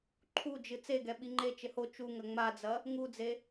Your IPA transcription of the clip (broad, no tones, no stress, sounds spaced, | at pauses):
ǃʰ u d͡ʒ ɨ t͡s e ɡ ɛ ɓ i ŋ͡ǃ e t͡ʃ ɘ h o t͡ʃ u ŋ ɐ ŋ͡m a d͡z ɐ | ŋ u d͡z e